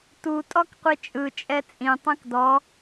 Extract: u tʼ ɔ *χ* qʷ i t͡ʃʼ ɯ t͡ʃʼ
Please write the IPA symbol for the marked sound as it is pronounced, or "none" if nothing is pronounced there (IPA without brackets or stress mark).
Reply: k